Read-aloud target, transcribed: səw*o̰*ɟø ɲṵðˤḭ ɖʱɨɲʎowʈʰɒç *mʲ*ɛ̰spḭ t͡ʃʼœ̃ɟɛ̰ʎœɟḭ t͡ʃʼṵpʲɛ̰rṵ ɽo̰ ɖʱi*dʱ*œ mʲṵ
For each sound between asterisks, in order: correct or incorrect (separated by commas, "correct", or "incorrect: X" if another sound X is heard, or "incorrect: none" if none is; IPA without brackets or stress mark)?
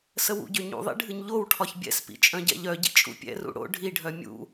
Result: incorrect: ṵ, incorrect: bʲ, incorrect: ɖʱ